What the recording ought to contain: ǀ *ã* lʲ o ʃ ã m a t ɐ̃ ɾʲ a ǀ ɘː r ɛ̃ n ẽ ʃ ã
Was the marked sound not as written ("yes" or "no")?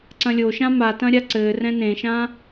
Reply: yes